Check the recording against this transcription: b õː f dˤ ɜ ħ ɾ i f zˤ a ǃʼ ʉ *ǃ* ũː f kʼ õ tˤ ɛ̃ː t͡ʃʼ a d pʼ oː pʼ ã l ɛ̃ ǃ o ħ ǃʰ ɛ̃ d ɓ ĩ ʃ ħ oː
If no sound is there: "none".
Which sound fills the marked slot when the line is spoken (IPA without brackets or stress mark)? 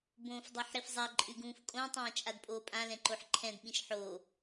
ɡ